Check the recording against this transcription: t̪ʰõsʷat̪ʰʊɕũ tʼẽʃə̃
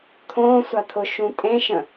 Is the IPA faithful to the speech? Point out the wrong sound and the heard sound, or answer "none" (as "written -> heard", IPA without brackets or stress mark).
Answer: ɕ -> ʃ